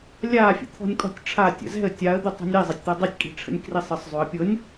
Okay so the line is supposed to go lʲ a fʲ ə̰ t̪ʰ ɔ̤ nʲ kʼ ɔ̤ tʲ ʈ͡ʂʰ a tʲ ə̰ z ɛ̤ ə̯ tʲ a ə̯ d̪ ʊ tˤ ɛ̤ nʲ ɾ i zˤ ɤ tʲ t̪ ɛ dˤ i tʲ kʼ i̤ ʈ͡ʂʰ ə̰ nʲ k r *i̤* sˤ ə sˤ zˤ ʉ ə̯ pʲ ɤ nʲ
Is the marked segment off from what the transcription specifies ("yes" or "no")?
yes